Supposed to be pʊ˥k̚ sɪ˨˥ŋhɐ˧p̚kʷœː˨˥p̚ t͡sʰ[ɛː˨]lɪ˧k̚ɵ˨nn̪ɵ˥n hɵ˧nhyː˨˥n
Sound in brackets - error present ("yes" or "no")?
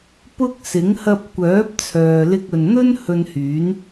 yes